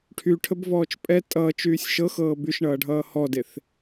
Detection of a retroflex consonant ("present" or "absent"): present